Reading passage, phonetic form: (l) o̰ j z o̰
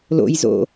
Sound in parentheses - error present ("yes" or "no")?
no